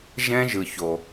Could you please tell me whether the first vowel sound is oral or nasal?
nasal